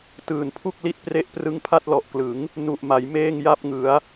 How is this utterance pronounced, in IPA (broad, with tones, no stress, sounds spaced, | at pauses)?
t ɯː˨˩ n pʰ u˥˩ k̚ l i˥˩ t̚ p r e˦˥ ʔ p r ɯ˦˥ ŋ pʰ a˥˩ t̚ l ɔ˨˩ ʔ k l ɯ˩˦ ŋ | n u˨˩ ʔ m a˩˦ j m eː˥˩ ŋ j a˥˩ p̚ ŋ ɯ˩˦ a̯